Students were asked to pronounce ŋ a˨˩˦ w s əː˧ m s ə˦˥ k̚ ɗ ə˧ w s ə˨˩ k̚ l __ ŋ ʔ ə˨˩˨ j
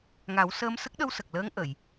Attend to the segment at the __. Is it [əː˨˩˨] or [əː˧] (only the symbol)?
əː˧